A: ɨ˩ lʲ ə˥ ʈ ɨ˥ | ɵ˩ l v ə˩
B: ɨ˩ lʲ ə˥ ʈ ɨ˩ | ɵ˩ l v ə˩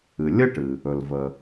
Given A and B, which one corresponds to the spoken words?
B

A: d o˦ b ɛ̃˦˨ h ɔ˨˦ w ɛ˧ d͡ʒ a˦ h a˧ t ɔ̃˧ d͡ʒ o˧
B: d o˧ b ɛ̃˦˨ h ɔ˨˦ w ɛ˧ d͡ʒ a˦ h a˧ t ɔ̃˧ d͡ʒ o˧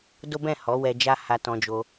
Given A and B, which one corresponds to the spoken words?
A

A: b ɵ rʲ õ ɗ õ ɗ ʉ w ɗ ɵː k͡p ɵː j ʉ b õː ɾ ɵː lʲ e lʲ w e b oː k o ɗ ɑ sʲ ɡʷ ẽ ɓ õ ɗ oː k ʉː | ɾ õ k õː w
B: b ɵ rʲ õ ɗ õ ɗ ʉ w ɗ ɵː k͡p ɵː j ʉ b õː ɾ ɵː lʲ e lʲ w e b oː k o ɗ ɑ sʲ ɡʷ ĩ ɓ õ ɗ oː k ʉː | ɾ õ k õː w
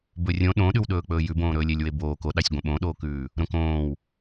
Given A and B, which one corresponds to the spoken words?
A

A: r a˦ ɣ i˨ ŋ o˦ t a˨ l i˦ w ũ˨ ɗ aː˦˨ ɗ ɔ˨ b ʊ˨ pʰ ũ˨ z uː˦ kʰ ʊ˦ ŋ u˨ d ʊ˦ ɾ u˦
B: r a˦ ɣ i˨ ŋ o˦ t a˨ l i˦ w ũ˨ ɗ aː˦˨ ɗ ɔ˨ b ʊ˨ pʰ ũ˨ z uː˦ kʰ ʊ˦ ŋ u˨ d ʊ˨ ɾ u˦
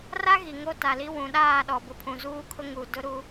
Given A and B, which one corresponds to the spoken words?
A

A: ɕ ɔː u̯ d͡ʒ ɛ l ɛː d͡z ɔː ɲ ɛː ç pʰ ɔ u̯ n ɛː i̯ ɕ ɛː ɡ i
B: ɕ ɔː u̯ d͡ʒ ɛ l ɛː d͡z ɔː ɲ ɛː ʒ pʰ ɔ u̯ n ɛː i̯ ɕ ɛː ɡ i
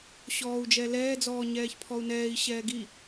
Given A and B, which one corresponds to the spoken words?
A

